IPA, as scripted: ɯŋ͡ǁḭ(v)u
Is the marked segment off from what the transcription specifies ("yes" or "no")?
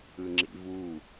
no